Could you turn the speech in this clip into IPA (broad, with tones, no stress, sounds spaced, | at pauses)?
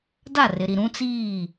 d a˦˨ r ɪ˨ ɾ i˨ ɾ ũ˦ t͡s iː˦˨